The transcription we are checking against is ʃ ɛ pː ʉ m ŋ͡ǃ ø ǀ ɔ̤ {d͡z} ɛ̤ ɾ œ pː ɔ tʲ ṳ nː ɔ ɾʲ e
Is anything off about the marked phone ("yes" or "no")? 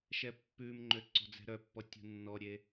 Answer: no